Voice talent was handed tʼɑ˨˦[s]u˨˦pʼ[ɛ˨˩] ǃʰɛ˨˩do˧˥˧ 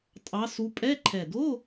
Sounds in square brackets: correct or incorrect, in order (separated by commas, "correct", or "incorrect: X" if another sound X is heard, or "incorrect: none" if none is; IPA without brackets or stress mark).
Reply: correct, incorrect: ɛ˧˥˧